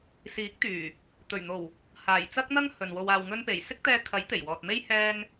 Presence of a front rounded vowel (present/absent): present